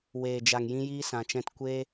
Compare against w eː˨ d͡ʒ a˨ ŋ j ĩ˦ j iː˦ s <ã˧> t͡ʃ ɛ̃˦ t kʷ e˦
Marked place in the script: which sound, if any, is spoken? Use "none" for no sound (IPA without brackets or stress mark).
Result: ã˧